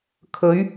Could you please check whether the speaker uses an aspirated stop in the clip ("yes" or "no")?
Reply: yes